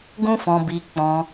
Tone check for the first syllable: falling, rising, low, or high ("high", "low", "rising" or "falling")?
high